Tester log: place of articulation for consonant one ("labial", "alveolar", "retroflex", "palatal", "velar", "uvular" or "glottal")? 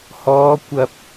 glottal